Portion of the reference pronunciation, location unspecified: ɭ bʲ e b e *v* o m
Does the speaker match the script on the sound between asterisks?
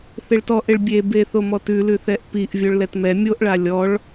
no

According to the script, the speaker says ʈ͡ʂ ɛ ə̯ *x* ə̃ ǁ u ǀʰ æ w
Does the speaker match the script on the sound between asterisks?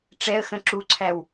yes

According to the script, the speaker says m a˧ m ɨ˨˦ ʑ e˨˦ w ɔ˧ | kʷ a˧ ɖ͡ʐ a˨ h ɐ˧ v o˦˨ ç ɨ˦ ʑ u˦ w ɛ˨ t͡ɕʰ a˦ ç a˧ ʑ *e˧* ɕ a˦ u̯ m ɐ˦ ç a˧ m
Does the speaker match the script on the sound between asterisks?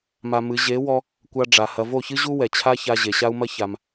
no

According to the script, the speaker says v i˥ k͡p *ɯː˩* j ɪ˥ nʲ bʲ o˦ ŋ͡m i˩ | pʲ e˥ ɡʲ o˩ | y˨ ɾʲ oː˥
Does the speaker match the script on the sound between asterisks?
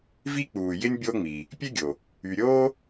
no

